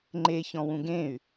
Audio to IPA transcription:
ŋ͡ǃe çɔ̃wũɡẽy̯

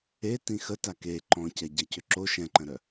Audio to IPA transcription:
e tĩxə take ǃɔ̃cɛɟɛcø ǁoʃ ɛ̃ǃə̃ɾœ

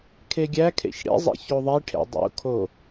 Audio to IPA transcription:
kʰeɡʲækʰḛç ɽḛzˤḛ çoðˤiʈʰḛ dˤṵkʰo

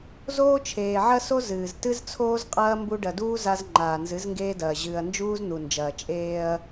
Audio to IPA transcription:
zoː˦t͡ʃʰeː˨ʕɐ˦so˦ zɨː˨z tɨ˦z t͡sʰoː˦zqʼɐː˦ mbu˦ ɖɐ˨duː˦ za˦z ŋ͡ǃaː˨nzɨ˨˦zŋɡeː˦dɐː˨ ʑɨː˨ɐ̯nd͡ʒuː˦zn̪u˨nd͡ʒɐː˨ t͡ʃʼeː˦ɐ̯

